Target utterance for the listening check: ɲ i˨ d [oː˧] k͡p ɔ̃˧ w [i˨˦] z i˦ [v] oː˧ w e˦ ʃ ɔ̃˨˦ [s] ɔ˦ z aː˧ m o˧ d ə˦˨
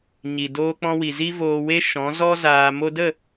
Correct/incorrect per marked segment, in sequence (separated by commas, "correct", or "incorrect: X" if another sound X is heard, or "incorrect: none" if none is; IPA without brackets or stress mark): correct, incorrect: i˨, correct, incorrect: z